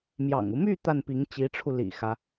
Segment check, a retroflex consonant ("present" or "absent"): present